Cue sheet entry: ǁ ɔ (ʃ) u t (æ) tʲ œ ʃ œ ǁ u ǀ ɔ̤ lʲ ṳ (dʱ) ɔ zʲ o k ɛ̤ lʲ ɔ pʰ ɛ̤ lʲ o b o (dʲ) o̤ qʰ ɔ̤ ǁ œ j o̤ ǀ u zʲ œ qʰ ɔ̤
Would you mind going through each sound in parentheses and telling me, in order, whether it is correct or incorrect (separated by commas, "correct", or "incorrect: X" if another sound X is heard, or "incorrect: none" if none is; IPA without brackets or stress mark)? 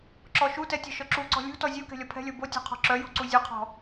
correct, incorrect: ɛ, incorrect: t, incorrect: tʲ